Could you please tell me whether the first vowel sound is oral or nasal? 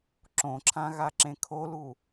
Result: nasal